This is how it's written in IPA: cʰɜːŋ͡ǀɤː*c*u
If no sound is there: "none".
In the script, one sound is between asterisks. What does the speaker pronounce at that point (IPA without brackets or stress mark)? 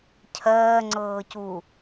c